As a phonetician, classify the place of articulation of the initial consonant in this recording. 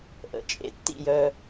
glottal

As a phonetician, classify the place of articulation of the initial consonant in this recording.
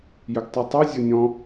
palatal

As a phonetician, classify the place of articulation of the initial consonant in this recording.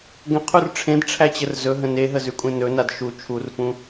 velar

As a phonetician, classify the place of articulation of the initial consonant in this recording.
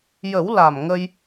palatal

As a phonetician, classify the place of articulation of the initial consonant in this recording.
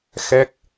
velar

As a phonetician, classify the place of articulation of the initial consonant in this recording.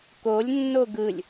velar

